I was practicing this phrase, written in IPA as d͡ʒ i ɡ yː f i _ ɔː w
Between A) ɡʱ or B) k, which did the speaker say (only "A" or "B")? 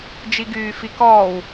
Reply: B